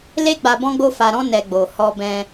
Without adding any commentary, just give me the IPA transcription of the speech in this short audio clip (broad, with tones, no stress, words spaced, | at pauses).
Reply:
le˦ɡ͡ba˧ bɔ̃˦ɡ͡bo˦fa˧ɾɔ̃˦ nɛ˧ɡ͡bo˨ hɔ˧bɛ̃˧